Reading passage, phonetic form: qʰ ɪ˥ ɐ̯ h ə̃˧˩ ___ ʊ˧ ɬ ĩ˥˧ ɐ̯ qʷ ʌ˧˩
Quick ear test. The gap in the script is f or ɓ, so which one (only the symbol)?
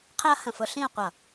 f